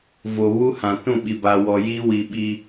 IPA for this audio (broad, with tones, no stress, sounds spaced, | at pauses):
v o˨ β u˦ h ã˨ t ũ˦˨ ɓ i˨ b a˨ w ɔ˨ j i˦ w i˨ ɓ i˨